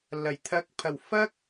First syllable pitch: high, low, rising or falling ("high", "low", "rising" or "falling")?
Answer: low